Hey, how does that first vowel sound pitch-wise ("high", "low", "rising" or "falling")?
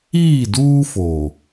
falling